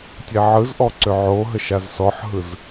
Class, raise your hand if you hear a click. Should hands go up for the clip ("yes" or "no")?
yes